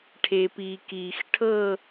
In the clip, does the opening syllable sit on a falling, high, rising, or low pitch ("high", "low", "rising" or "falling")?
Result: low